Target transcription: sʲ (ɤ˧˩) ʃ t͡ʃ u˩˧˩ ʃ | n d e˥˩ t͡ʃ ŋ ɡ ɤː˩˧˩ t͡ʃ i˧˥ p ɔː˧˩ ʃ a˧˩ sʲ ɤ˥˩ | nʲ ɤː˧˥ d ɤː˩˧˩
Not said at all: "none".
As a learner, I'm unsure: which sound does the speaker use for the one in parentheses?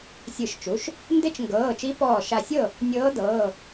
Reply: ɯ˧˩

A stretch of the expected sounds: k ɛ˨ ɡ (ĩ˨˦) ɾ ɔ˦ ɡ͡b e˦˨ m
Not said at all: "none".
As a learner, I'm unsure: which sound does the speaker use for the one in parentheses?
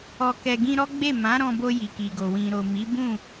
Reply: ĩ˧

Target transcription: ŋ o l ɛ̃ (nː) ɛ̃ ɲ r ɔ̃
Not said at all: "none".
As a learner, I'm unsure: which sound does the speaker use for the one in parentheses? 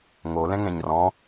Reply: ŋ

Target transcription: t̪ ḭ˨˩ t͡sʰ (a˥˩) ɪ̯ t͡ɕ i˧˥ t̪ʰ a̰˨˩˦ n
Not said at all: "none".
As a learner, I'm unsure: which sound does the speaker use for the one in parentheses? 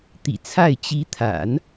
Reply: a˥˩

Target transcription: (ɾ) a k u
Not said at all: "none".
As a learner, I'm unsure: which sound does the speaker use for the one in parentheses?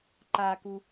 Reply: ǃ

